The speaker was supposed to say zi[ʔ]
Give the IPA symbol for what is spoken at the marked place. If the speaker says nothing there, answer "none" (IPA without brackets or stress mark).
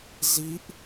ʔ